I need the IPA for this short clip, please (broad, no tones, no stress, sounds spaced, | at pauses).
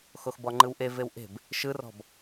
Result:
x o x b ɔ ŋ͡ǃ ɯ w ʔ e v e w ʔ e̤ b | ʃ ɯ r ɔ̤ b